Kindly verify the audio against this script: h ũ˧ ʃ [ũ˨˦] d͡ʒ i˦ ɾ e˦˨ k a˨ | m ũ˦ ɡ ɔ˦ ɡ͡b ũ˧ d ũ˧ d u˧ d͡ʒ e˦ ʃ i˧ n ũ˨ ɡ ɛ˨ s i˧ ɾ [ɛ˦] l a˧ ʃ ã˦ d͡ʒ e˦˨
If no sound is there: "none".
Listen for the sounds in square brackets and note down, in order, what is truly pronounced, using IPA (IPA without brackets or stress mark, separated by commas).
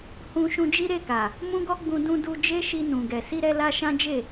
ũ˧, ɛ˧